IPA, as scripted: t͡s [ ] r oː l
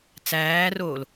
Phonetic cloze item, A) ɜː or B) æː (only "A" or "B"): B